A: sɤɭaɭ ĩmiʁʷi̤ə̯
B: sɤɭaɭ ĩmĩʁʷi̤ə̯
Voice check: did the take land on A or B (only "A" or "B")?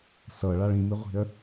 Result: A